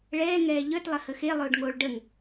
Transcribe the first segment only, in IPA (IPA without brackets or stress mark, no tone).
ɭ